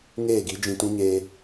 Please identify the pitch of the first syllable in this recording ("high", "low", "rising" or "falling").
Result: falling